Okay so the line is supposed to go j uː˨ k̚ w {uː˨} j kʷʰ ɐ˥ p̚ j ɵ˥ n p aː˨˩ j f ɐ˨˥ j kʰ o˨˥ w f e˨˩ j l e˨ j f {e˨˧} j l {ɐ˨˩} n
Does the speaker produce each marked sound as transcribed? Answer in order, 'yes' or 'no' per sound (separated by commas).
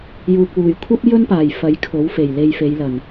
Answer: no, yes, yes